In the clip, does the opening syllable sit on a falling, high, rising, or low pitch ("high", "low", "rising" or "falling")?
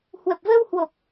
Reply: low